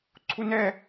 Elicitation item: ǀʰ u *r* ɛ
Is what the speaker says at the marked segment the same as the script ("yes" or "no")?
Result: no